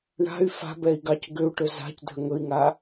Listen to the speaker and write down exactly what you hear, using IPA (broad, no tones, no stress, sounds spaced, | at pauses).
ɳ a̤ y̯ f a̤ b ɛ i̯ ɡ ɑ c ɡ ʏ u̯ ʈ ɵ z a̤ c dʱ ə ŋ ɵ i̯ ŋ a